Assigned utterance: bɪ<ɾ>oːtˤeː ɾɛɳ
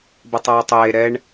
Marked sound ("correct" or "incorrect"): incorrect